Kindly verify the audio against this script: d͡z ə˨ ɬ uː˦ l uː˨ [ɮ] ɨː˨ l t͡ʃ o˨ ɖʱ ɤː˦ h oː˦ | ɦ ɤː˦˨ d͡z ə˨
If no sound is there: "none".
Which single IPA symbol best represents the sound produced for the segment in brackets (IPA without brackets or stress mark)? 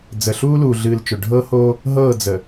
ɮ